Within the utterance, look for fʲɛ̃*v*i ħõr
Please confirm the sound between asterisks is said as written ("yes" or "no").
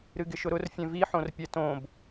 yes